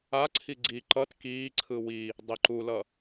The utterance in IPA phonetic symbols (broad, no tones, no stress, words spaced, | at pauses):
aǀʰi ɡ͡ǀi ǃʌt kiːǀʰɯ wi | dˤeǃulʌ